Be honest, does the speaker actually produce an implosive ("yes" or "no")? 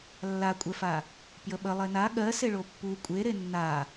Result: yes